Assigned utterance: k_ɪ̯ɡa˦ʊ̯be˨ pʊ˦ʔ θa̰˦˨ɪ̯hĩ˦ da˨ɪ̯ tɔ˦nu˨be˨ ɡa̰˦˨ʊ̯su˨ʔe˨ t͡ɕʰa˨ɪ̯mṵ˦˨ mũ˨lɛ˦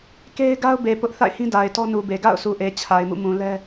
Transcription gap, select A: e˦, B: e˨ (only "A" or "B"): A